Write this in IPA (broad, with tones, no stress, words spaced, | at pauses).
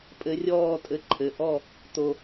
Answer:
pʼɘ˨˥rʲɔː˥˨tʼɘ˨˥ ǃʰɘ˩˧˩ʔɔ˥˨ | t̪o˧